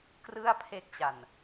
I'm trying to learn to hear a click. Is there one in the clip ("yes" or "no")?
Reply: no